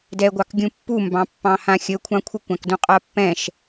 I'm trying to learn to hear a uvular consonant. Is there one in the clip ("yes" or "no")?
yes